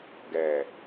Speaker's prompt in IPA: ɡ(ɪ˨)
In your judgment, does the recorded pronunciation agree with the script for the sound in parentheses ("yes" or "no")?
no